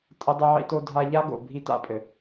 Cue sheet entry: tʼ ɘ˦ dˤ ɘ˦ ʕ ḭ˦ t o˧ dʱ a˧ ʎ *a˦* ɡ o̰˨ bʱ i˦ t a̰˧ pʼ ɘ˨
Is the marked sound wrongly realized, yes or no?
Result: no